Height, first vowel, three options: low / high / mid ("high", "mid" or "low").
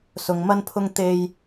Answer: high